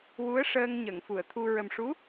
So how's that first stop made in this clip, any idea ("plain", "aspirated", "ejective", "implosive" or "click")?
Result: aspirated